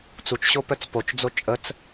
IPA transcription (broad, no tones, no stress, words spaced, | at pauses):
t͡sut͡ʃɕo pœt͡spot͡ʃd͡zo t͡ʃʼət͡s